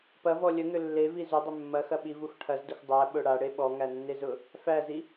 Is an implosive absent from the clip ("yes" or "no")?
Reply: no